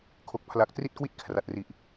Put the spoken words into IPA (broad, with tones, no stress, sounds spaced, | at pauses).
kʰ o˨˩ k̚ pʰ l a˨˩ k̚ t r i˥˩ t̚ k w i˥˩ t̚ kʰ r a˨˩ t̚ r i˨˩ ʔ